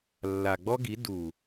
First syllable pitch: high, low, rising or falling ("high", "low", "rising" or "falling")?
low